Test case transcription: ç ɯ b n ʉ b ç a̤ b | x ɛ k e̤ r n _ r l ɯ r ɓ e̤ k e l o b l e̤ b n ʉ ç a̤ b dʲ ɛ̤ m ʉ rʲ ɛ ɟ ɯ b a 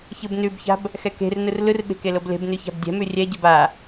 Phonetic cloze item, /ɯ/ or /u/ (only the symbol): ɯ